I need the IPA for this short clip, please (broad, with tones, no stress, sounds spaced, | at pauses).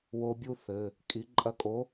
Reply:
w o˧ bʲ u˥˧ θ ɘ˩˧˩ | kʼ i˨˥ ǃʼ ɐ˧ kʼ o˨˥